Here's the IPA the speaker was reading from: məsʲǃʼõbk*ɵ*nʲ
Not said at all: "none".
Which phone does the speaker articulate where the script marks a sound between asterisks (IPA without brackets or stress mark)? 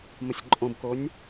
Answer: o